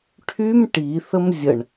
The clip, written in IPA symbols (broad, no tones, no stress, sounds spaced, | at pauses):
ʈʰ y m ʈ i θ ə m zʲ ə ɳ